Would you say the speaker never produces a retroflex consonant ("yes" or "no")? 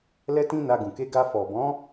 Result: yes